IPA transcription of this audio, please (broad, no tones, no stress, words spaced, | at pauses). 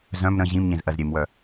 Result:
zœ̃m ɾə̃ ʑĩmɲẽz ʔɜzɾʲemwœ